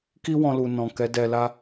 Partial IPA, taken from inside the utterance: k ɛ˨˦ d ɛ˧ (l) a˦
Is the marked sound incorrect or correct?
correct